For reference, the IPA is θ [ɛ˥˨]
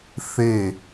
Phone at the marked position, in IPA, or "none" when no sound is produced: e˥˨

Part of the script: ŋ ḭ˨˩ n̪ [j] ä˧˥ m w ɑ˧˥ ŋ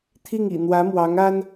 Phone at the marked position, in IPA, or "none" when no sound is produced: w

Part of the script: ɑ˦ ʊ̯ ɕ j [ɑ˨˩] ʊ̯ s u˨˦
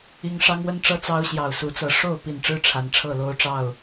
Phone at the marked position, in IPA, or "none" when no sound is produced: ɑ˨˩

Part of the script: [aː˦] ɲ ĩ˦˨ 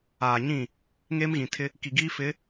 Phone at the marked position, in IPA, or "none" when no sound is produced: aː˨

